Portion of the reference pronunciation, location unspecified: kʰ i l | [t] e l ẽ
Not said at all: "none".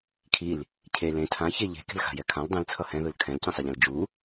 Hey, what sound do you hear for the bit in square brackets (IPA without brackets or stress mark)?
cʰ